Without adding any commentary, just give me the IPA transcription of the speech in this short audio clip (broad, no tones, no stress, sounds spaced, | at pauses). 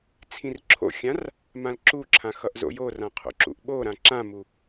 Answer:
t͡sʰ ĩ r ǁʰ o̰ xʲ ã r | m ã l ǁ u ǁʰ ã x ʌ ʔ z o̰ j o r ã qʰ o̰ ǁ ṵ ʔ ɓ o ɾ ã ǁ ã m u